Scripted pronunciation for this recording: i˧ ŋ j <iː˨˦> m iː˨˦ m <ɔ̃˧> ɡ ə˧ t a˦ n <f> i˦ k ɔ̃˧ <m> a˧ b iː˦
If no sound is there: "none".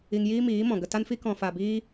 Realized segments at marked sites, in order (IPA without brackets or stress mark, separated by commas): iː˦, ɔ̃˨, f, f